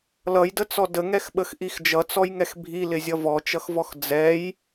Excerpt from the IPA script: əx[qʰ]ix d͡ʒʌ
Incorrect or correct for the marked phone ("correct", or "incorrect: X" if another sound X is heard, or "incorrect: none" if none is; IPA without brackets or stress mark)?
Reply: incorrect: ʔ